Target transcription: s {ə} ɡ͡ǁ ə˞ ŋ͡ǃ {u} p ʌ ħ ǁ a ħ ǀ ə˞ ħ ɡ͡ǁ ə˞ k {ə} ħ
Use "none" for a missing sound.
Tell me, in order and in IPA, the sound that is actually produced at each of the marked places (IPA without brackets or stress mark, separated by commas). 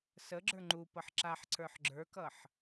ə, u, ʌ